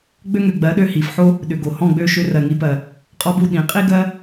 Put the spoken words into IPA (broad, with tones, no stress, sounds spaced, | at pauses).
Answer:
ɡ͡b ø˥ ŋ ø˩ ɡ͡b ɜ˩˥ ɗ ø˥˩ h i˩ f ħ o˥ | ɗ ʏ˩ ɡ o˩ h ɔ̃˥˩ ɡ͡b ø˥˩ ʃ ʏ˧ r ɜ˩ ŋ i˧ p ɜ˩ | qʼ ɔ˧ b u˥˩ ɗ ĩ˩˥ qʼ i˥ ɡ ɜ˥